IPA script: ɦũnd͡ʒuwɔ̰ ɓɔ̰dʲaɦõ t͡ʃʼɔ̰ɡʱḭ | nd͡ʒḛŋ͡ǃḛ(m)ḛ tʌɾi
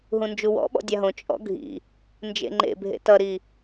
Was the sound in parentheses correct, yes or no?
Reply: no